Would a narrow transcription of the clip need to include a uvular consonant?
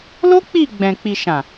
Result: no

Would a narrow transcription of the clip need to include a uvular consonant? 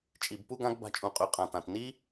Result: yes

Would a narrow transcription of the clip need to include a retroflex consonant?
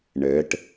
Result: yes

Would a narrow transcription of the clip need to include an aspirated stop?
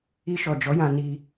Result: no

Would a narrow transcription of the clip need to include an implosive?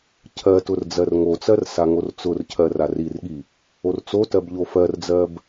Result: yes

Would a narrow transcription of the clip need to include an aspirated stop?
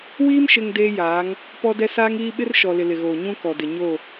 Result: no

